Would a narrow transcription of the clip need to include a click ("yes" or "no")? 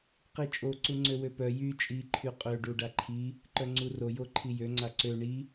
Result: yes